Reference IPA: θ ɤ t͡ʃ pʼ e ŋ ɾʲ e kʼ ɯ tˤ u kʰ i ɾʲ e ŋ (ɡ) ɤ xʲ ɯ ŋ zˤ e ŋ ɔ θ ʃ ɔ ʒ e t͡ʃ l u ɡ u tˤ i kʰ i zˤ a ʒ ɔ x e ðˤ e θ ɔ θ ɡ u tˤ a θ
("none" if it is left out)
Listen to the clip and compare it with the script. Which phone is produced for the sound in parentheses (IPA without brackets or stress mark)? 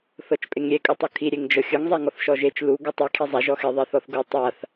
d͡ʒ